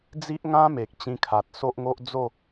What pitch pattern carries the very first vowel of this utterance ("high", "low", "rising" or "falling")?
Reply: high